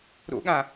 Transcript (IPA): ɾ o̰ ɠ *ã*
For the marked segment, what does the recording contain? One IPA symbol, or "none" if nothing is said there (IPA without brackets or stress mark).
ã